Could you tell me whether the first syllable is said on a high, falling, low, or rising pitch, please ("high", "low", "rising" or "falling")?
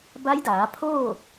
rising